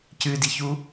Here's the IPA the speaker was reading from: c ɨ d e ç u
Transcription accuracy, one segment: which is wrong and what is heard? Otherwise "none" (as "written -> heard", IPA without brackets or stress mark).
e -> i